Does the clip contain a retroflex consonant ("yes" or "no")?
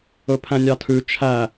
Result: no